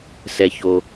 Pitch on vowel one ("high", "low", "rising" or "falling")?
low